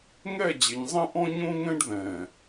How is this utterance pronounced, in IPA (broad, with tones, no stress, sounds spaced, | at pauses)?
ŋ ɛ˦˨ d͡ʑ ɪ˨ ɲ zˤ ɛ̃˦ ʔ ɔ̃˦ ɲ õ˦ ŋ ɛ̃˦ ɖ ð ɛ̃˨